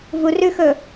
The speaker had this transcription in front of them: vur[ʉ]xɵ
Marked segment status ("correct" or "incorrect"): correct